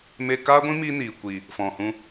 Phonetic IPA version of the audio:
me˧kaː˦ɡʷĩ˦ mi˦niː˨kʷi˨ | fɔ̃˨ hũ˦

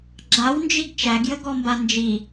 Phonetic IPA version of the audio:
ɡ͡ǁawnd͡ʒiɡ t͡ʃæɡjəɡɔmba nd͡ʒi

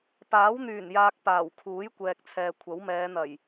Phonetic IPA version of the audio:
paː˨˥wn̪yː˨˩njaː˨k̚ paː˨˩wkʰuː˨˥jkʷɛː˨k̚t͡sʰɛː˨ kʷʰɐ˨˥wmɛː˨˧ n̪ɐ˨˩j

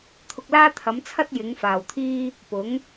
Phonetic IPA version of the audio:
t̪ʰʊ˧k̚laː˥t̪ʰɐ˨˥mt͡sʰɐ˥t̚ jɪ˨˥ŋfaː˨wt̪ʰiː˥ | pʊ˨˥ŋ

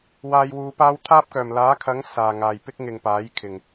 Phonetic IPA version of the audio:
waː˧jwuː˨˧paː˥w t̪ʰaː˥p̚kœː˨˩m laː˨˥kʰɐ˨˥ŋ saː˨˩ŋaː˨˩jpɪ˥k̚ ŋɪ˨ŋ paː˨˥jkʰɪ˨˩ŋ

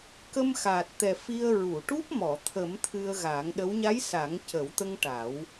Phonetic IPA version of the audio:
kə˧mxaː˨˩t̚t̪ɛ˨˩ fi˧ə̯ ɹu˨˩˨ʈu˦˥p̚ mɔ˨˩˨ t̪ʰə˨˩˦m t̪ʰɨ˧ə̯ɣaː˨˩˦ŋɗə˧˥w ɲa˧˥j sa˨˩˦ŋcə˨˩˦wt̪ə˧ŋ ʈa˨˩˦w

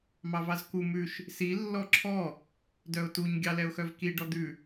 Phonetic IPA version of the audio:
mɑvɑzku mʉʃ | si lːɔǁʰɔ | dœʊ̯tuɲ ɡʲɑlɛʊ̯xœvki ɖɔd̪ʉ

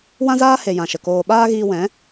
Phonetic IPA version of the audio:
wã˦zaː˦he˨ jã˨ʃə˨koː˧ ɓaː˦ɣiː˧wɛ̃˨˦

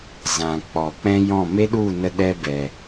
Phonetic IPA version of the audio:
zã˨ k͡pɔ˨ k͡pɛ̃˦jɔ̃˦˨ me˦ɗu˦˨nə˧ ɗɛ˦bɛ˨

